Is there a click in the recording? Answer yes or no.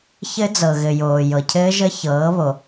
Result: no